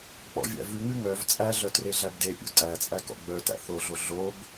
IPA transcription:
k͡p ɔ̰ vʲ æ̰ v ʉ ŋ ʉ ŋ œ v t͡sʼ æ ɮ œ t r e ɮ æ b d e pʲ ṵ tʼ æ t͡sʼ æ k ɔ̰ ɡ͡b œ t æ̰ θ o ɮ o ɮ o b

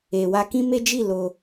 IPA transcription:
e˨ w a˧ k ĩ˦ m e˦ d͡ʒ i˦˨ l o˧

